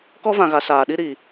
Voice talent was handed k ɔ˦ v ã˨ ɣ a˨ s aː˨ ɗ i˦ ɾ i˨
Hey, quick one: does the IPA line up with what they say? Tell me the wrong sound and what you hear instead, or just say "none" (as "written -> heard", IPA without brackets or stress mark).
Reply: none